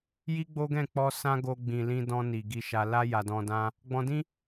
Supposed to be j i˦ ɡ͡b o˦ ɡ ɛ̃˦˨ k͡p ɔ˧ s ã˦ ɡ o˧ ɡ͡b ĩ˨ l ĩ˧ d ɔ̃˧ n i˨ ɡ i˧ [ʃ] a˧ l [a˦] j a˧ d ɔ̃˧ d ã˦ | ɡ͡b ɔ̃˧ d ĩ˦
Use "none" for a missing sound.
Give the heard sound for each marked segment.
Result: ʃ, a˦

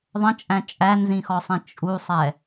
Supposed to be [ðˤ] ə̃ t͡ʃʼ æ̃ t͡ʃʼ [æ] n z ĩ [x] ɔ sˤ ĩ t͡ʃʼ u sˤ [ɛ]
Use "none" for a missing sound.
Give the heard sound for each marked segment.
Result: ðˤ, æ, x, ɛ

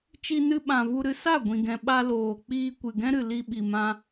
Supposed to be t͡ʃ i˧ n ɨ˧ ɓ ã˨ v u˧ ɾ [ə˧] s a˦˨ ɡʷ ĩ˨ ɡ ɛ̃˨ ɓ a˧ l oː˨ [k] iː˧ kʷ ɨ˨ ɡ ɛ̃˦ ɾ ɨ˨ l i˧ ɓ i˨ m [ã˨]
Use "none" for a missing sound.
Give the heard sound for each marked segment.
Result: ɨ˧, k͡p, ã˧

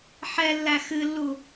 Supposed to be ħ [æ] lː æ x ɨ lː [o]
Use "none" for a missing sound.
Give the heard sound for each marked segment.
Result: ɛ, u

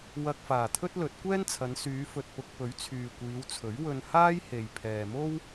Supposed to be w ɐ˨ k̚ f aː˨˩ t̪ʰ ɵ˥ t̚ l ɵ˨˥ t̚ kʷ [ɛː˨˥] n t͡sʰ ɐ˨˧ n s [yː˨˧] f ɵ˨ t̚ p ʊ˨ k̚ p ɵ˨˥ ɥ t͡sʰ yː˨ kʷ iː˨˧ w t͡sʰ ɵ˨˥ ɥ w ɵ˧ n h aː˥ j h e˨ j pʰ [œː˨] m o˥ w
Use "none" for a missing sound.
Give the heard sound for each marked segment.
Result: ɛː˥, yː˨˧, ɛː˨

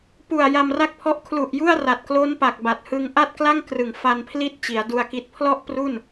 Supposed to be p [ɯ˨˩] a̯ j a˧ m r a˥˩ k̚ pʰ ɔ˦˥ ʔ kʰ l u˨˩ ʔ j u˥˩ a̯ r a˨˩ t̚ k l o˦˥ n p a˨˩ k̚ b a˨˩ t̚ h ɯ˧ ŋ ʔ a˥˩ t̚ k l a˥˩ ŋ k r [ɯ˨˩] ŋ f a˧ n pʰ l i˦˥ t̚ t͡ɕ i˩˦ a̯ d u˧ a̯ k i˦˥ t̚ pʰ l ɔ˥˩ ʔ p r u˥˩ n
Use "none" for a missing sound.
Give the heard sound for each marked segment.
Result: u˨˩, ɯ˨˩

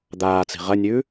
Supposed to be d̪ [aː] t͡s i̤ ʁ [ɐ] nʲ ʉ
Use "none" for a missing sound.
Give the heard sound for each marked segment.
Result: aː, ɐ

